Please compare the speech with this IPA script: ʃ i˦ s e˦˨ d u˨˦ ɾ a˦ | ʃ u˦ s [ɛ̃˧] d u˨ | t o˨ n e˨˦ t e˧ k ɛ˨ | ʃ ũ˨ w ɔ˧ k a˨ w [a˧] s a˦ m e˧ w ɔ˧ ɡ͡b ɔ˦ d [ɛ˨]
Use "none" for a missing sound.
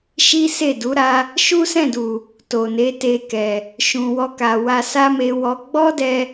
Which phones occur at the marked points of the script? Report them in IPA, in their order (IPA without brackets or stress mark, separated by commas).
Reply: ɛ̃˦˨, a˧, ɛ˧